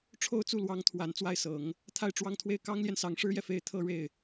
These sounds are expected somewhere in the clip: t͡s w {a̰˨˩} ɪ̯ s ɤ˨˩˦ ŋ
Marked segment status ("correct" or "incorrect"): incorrect